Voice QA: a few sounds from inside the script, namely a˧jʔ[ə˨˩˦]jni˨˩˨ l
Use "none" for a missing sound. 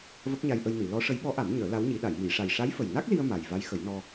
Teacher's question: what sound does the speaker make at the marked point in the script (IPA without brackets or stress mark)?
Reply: ə˧